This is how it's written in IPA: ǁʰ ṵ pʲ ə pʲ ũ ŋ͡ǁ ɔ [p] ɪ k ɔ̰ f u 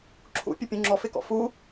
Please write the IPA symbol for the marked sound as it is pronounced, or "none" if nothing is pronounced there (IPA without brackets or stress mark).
f